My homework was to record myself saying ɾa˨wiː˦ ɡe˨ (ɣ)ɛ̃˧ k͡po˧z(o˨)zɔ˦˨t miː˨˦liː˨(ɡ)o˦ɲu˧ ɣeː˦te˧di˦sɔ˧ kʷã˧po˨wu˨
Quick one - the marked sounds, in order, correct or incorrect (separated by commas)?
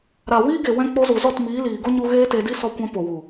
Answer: incorrect, incorrect, correct